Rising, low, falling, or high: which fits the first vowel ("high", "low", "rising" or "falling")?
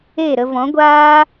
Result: falling